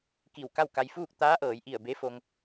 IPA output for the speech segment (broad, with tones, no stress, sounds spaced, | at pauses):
k i˧˩ w k a˥˨ w k a˧ j f uː˥˨ k̚ t̪ aː˧˥ ʔ ɤː˩˧ j ʔ i˧˩ ə̯ b e˧˥ f o˧ ŋ